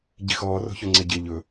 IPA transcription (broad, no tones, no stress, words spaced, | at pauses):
ɟixɔːro̤ çoŋ͡ǀɪːɟɪː ʎɵ